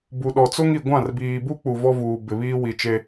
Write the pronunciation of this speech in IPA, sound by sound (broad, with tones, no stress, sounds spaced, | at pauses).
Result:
b u˨ ɗ ɔ˨ t͡s o˦ ŋ i˨ ɡʷ ã˦˨ r b iː˨ b u˦ k͡p u˨ v ɔ˦ v uː˨ b ɪ˨ β iː˦ w i˨ t͡ʃ e˦